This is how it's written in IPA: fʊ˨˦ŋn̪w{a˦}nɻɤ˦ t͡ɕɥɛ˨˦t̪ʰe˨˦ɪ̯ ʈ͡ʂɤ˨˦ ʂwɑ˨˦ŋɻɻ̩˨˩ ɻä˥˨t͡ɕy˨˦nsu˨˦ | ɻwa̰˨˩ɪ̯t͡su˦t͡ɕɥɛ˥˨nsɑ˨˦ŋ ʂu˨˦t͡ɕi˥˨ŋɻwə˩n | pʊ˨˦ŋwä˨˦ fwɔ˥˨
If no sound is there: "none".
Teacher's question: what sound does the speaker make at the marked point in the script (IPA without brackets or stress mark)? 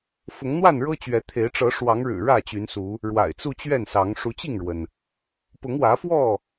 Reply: a˥˨